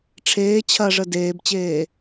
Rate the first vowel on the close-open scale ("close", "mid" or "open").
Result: mid